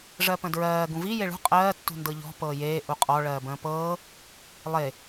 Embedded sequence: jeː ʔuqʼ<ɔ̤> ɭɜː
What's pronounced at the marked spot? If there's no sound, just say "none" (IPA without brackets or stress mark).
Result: ɔ